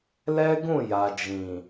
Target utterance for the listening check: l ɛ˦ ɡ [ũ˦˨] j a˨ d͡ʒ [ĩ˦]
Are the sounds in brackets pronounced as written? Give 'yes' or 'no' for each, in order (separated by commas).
yes, no